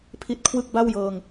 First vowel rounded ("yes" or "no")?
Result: no